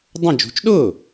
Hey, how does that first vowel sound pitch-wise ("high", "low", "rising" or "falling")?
falling